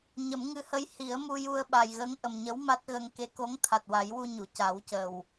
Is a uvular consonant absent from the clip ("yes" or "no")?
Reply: yes